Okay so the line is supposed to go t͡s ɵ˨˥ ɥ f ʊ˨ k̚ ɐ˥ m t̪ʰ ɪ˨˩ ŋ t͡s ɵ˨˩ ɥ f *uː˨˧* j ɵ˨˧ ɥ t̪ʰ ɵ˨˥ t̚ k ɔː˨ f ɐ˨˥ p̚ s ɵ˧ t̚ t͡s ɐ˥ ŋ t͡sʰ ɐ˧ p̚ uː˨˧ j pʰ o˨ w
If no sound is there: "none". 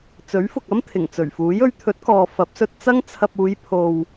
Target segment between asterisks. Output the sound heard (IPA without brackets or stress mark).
uː˨˥